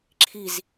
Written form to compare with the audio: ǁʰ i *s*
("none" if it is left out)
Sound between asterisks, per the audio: z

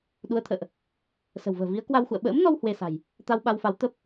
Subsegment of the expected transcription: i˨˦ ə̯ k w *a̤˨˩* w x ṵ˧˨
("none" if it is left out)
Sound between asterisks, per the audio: a˧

